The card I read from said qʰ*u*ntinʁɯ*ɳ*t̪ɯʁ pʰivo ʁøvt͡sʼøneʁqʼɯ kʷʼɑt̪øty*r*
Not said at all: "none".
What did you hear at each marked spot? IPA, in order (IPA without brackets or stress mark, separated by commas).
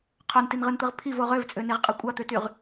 o, n, ʁ